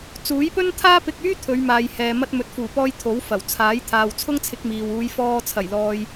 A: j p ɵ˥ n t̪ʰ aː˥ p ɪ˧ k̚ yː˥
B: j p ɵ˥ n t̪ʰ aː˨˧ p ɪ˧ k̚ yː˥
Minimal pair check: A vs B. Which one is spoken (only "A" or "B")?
A